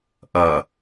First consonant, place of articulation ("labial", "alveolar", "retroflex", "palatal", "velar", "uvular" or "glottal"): glottal